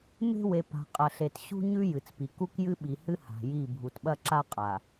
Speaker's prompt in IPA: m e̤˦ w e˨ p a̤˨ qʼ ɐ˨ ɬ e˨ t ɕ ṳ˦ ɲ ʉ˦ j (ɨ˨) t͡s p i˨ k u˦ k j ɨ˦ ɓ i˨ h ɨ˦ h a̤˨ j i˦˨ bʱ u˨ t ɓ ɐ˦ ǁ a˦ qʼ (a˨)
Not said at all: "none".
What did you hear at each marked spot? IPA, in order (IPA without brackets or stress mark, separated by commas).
ɨ˨, a˨